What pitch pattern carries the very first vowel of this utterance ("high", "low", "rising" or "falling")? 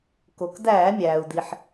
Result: low